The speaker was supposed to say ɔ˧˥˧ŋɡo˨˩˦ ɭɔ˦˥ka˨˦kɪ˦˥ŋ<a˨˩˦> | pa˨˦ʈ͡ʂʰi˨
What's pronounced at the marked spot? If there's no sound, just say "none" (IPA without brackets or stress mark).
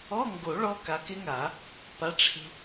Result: a˨˩˦